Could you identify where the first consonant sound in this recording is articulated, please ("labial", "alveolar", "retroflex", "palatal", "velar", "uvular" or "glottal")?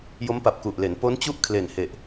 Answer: palatal